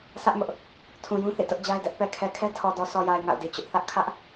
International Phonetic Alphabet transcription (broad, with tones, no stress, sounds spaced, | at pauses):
sʰ ä˦ ʔ m ʊ˦ ʔ | tʰ ũ˨ j ũ˦ θ ḭ˦˨ t ʊ˦ ʔ d͡ʑ a˦ ɪ̯ d ɛ˦ ʔ p ɛ˨ kʰ ɛ˨ kʰ ɛ˦ tʰ ɔ˨ d ɔ˨ sʰ ɔ˨ j a˨ ɪ̯ ŋ a̰˦˨ ʊ̯ d i˨ t͡ɕ ʊ˦ ʔ θ ä˦ ʔ kʰ ä˦ ʔ